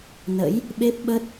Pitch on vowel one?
rising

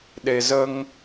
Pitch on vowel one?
low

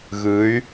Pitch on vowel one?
rising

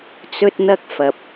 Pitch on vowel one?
high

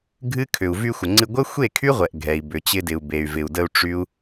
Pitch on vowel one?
high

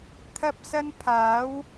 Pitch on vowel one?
high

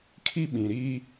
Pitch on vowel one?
high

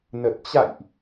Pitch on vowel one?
low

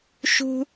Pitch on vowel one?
high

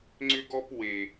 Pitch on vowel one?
high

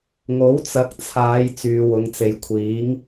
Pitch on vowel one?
rising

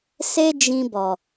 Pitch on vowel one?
high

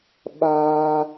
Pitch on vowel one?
high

